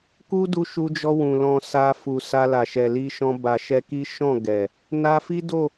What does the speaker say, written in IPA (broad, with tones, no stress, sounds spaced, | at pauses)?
k u˦ d u˧ ʃ u˧ d͡ʒ ɔ˧ w ũ˨ l ɔ̃˧ s a˧ f u˨ s a˧ l a˨ ʃ ɛ˨ l i˧ ʃ ɔ̃˧ b a˨ ʃ ɛ˧ k i˦ ʃ ɔ̃˦˨ ɡ ɛ˨ | n a˧ f i˦ d o˦˨